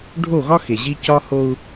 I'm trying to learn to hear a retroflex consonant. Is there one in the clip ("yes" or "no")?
yes